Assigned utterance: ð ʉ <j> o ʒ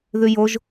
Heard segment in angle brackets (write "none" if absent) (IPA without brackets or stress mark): j